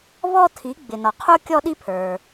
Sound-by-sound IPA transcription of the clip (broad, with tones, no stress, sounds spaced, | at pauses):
β ɔ˥ tʰ i˩˥ ɡ͡b ɪ˩ n ɔ˩ qʰ u˥ kʲ ɔ˥ ɗ i˥ pʰ ə˞˩